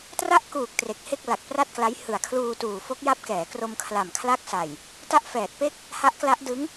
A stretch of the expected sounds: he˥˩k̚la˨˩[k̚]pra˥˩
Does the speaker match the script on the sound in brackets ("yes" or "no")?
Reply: yes